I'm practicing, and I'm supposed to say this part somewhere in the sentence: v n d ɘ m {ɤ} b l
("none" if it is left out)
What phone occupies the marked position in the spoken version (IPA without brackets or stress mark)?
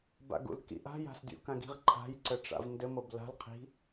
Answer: ɤ